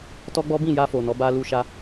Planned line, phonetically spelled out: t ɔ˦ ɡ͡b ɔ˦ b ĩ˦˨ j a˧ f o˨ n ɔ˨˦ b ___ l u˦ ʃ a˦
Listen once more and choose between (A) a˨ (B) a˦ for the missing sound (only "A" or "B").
B